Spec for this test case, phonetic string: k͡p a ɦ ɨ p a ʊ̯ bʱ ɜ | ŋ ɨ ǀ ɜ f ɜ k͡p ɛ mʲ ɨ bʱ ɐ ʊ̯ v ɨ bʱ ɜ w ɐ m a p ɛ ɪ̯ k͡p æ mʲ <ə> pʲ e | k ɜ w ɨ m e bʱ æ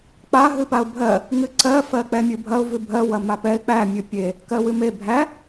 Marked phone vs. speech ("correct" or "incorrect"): incorrect